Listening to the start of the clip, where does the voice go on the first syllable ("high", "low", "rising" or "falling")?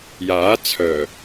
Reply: rising